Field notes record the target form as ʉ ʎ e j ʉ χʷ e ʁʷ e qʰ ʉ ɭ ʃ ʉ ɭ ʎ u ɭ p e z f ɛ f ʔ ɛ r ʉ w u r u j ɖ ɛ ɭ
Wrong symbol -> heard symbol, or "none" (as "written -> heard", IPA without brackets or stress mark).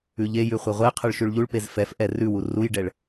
none